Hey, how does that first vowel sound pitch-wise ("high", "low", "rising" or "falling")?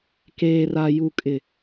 low